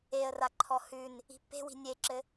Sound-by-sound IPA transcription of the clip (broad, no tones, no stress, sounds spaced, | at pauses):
e ə̯ r a ǃʰ ɔ h ʉ n | i̤ pː e̤ w i̤ nʲ e ǁ ɘ